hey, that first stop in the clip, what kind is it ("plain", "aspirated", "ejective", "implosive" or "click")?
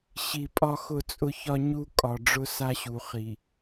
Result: ejective